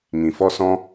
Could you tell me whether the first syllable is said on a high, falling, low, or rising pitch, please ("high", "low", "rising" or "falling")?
low